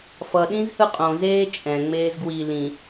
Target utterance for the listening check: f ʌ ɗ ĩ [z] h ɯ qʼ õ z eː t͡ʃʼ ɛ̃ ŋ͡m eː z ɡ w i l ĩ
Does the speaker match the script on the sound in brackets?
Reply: yes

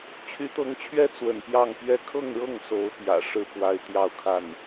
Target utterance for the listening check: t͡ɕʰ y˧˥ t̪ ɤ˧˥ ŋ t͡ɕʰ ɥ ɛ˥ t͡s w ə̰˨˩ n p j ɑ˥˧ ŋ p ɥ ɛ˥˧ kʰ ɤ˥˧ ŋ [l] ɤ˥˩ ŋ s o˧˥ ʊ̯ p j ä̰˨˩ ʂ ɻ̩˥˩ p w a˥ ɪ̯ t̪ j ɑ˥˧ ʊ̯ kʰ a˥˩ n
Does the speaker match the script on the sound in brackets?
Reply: no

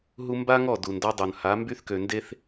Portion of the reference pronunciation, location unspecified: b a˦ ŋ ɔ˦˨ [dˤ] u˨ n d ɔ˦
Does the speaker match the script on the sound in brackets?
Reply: no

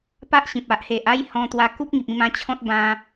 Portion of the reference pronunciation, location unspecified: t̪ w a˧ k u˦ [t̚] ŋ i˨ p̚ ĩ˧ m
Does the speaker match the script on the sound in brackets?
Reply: no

